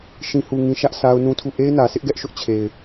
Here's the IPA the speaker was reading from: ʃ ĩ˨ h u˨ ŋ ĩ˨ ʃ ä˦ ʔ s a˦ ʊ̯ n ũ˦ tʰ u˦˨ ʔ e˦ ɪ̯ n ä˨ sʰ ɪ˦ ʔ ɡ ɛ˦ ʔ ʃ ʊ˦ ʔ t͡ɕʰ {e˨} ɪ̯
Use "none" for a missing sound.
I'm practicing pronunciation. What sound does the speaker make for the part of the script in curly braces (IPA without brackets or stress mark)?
e˨